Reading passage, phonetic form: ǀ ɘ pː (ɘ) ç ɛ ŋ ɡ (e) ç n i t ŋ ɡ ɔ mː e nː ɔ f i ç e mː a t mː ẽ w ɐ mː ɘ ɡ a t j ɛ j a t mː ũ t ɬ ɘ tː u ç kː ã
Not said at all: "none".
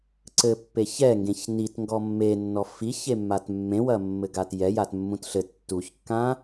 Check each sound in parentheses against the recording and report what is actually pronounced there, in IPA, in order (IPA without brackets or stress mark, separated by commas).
e, ẽ